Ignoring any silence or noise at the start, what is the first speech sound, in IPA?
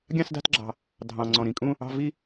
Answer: ɡʲ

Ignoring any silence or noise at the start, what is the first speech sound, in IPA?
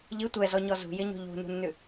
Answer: ʎ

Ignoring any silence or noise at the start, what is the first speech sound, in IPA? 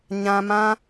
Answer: ɲ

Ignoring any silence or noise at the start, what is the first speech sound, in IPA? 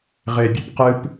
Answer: ʁ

